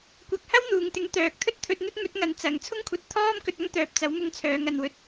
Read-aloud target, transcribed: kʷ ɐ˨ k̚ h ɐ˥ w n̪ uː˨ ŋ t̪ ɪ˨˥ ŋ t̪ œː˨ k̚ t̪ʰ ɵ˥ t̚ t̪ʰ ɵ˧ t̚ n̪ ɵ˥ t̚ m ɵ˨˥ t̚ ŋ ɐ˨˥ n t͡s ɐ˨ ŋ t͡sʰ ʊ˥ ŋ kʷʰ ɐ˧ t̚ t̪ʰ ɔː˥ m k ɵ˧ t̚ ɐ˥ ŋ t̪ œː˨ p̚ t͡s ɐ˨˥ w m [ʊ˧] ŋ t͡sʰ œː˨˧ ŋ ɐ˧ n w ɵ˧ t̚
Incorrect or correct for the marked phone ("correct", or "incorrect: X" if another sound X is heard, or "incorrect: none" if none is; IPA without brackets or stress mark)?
correct